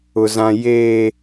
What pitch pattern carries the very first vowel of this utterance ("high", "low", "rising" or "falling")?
low